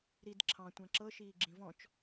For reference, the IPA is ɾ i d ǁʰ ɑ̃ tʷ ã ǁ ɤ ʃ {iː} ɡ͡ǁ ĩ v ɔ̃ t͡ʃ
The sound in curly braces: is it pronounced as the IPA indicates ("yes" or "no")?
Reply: yes